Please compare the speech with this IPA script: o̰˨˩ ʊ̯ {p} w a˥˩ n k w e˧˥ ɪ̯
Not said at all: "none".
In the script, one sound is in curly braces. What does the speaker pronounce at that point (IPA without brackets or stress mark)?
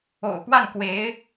p